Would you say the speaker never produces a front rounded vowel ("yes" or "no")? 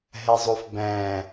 yes